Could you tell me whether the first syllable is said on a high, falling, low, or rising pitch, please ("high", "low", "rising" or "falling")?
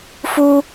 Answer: high